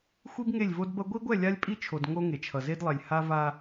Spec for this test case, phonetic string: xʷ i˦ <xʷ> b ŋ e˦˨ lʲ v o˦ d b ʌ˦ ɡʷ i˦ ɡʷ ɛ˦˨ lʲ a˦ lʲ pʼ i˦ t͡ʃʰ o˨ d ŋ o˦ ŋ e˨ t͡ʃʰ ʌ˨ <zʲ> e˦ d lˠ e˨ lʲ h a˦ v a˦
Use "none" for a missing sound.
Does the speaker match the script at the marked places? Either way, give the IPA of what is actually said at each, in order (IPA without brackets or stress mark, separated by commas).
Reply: none, z